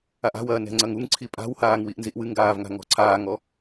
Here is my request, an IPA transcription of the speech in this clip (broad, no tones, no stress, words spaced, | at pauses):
aʔa̤wɐː nɛ̤ŋ͡ǀɐŋuŋǀʰi pʼa̤whaːŋ wiʔnziʔwɨŋɡaːv ŋa̤ŋɔ̤ǀʰaːŋɔ